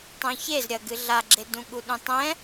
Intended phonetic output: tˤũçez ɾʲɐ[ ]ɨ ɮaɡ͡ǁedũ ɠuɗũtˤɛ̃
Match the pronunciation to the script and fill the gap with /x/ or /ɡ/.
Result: ɡ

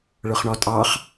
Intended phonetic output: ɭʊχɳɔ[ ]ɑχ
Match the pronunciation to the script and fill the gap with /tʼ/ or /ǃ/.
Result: tʼ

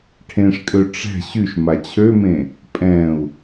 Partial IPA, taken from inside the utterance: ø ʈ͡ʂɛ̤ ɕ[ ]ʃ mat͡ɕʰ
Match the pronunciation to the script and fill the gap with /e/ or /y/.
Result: y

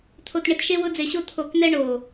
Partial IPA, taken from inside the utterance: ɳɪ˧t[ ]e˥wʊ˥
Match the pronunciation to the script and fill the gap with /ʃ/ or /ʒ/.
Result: ʃ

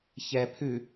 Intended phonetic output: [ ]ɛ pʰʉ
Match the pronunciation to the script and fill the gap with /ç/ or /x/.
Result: ç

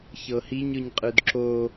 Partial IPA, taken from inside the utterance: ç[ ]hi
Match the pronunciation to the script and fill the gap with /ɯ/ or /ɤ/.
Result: ɤ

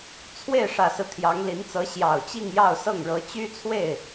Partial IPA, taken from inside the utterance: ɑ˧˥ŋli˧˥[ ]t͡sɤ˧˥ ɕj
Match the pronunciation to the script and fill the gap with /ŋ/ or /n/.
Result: n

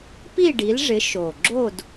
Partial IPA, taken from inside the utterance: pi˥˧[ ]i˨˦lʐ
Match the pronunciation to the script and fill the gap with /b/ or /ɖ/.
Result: ɖ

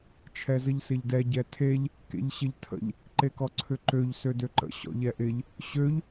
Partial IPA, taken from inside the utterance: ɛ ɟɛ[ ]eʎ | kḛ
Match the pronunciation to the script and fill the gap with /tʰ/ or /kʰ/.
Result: tʰ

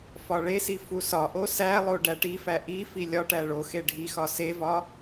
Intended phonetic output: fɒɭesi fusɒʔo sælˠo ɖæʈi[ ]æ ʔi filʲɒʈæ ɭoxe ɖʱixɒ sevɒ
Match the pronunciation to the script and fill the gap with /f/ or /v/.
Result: f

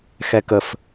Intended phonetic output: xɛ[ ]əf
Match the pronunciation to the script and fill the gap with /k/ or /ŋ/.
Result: k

